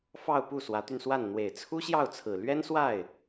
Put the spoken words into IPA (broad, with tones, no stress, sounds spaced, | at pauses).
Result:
f ɑ˥˧ ʊ̯ p u˥˩ s w ä˧˥ t̪ y˧ n s w a˥˩ n n̪ w e˨˩ ɪ̯ t͡sʰ u˥ ɕ j ɑ˥˩ ʊ̯ t͡sʰ ɹ̩˨˩ l ɥ ɛ˥ n s w a˥˩ ɪ̯